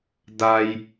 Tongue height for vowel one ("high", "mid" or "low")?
low